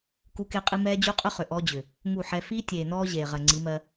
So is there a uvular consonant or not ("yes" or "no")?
yes